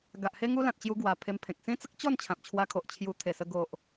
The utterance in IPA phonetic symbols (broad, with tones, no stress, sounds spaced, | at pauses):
ɡ a˨ ʔ h e˦ ŋ u˦ l ã˨ t̚ t͡ɕ j u˧ ɡ w a˨˩ pʰ e˧ m pʰ ẽ˨ k̚ s ĩ˦ t͡s ə˦ k̚ t͡ɕ ɔ˥˧ n t͡ɕʰ ã˨ p̚ t͡ɕʰ w a˧ kʰ o˨ ʔ t͡ɕʰ j u˧ t̪ʰ e˨˩ s ə˧ ɡ o˨ ʔ